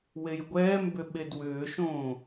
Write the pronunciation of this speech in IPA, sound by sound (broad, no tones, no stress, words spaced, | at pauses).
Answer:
wejɡʷɛːmbʏ ɓedwʏːʃõː